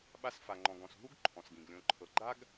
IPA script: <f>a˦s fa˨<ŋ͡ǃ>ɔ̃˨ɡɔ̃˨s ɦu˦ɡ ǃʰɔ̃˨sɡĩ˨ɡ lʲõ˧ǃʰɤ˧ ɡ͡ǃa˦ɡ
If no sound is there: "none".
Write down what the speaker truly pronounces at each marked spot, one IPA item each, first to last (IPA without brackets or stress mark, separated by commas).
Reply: ɓ, ŋ͡ǃ